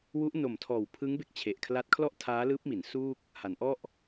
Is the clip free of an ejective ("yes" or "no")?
yes